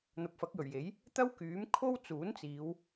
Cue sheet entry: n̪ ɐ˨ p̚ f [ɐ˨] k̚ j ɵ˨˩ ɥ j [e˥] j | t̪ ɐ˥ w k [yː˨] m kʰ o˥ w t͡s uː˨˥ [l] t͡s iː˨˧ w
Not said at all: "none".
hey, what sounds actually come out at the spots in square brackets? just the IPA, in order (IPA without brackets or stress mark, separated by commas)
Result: ɐ˨˥, e˨˥, yː˨˥, n